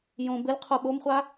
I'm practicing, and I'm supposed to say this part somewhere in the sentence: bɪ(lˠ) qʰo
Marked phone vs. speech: incorrect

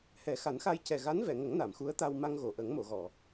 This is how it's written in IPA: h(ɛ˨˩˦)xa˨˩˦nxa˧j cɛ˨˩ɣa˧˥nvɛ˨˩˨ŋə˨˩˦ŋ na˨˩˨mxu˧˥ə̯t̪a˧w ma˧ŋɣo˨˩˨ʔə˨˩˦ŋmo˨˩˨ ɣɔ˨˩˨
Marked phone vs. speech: correct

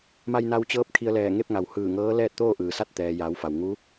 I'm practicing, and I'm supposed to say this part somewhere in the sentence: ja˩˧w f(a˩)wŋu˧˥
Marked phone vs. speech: correct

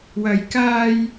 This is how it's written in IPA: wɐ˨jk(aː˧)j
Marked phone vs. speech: correct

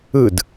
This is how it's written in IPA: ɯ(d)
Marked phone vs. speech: correct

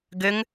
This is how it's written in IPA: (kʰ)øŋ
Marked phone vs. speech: incorrect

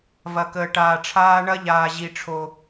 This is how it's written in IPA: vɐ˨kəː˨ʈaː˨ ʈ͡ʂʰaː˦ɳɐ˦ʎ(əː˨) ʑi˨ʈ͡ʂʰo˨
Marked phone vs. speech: incorrect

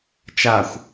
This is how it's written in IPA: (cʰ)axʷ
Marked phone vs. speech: incorrect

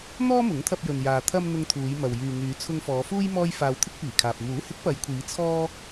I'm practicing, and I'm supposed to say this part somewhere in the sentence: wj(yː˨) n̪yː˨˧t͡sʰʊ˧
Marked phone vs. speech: correct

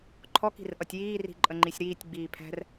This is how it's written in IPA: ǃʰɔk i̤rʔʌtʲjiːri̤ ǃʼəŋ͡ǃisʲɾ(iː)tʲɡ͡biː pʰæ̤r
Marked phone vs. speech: correct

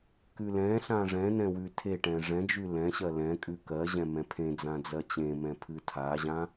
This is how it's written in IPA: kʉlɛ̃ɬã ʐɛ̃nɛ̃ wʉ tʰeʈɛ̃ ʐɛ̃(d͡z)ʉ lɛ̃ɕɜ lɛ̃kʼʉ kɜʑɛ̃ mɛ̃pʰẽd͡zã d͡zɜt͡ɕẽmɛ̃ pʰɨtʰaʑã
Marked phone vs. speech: incorrect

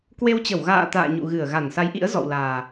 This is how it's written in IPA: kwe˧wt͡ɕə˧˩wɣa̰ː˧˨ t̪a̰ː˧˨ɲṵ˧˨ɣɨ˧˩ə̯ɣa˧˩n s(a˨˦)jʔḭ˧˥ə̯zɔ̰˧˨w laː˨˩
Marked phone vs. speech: correct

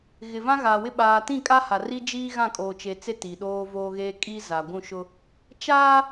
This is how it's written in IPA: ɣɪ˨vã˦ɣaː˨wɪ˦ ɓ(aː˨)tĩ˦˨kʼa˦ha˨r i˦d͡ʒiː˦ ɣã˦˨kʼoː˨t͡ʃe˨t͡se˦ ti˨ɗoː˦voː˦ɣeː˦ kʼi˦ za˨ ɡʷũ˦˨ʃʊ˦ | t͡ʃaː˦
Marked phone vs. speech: correct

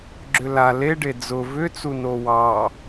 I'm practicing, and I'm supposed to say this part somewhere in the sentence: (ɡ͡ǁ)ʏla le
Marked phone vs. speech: correct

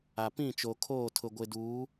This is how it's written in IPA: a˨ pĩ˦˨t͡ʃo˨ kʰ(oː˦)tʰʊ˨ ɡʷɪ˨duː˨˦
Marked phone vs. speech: incorrect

